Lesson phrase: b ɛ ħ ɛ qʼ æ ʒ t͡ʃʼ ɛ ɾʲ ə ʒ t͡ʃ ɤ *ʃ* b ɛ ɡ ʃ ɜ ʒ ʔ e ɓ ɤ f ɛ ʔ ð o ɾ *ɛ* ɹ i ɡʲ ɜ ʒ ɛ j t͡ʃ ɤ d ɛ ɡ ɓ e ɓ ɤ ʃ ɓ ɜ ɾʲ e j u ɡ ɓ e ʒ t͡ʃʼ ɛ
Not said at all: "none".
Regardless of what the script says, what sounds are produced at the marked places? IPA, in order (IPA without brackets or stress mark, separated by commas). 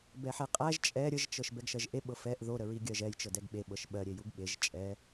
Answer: ʃ, ə